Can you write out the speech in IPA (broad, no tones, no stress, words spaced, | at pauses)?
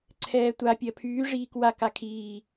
ǀʰɛːtʷa pʲɜpʰyː ʐiːkwa kakʰiː